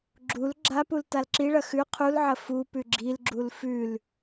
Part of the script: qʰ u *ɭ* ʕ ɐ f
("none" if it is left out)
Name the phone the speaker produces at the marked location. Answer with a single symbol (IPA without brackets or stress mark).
l